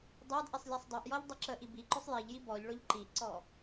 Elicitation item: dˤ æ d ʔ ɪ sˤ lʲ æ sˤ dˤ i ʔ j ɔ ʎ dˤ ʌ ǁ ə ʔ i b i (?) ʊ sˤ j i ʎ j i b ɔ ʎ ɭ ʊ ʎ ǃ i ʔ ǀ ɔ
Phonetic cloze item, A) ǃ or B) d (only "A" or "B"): A